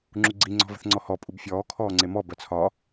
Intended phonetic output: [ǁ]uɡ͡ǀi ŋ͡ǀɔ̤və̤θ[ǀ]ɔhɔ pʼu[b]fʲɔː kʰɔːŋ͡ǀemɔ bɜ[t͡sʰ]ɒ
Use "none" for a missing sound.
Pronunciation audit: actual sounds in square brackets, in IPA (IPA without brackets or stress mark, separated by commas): ŋ͡ǁ, ŋ͡ǀ, b, t͡sʰ